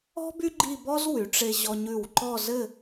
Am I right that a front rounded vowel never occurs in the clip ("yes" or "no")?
no